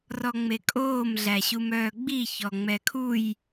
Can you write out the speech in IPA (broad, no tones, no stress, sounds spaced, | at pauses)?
r ɔ ŋ͡m e kʼ oː m ɮ æ ɕ u m œː ɡ͡b i ç ɔ ŋ͡m ɛ kʰ u j